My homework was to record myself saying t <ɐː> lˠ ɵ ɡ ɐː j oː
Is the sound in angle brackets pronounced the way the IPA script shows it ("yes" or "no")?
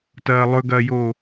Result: yes